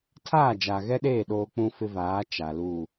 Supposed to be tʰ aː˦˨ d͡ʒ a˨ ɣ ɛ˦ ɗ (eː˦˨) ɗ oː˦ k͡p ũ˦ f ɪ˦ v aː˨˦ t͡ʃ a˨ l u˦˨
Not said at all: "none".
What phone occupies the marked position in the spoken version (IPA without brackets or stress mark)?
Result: eː˦˨